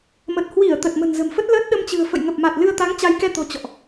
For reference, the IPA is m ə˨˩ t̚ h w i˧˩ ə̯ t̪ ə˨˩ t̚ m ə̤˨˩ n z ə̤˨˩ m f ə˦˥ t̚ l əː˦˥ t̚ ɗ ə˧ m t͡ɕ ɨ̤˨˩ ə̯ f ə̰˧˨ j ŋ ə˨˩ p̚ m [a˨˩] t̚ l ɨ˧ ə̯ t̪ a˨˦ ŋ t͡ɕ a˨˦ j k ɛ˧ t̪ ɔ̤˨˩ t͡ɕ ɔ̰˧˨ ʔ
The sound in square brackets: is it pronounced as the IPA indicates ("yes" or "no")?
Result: yes